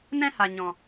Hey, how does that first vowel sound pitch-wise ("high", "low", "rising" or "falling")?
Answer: high